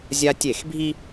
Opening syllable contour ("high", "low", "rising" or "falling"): high